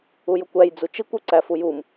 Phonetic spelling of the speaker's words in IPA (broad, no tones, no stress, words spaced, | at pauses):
ujʊkʷæj d͡zut͡ʃikʷ uǀæfujum